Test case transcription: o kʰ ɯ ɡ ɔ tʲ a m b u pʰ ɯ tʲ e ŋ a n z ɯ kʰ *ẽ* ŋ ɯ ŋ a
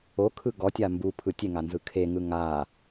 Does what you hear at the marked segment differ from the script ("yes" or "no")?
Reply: yes